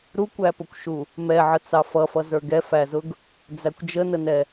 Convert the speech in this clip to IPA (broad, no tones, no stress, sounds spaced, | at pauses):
ɾ u kʷ æ p ʊ kʷ ʃ u | m ɛ ʕ ə t͡s ɑ f ʌ f ʌ z ə˞ ɡ ɛ f æ z ʊ ɡ | d͡z æ kʷ d͡ʒ ə n ə n ɛ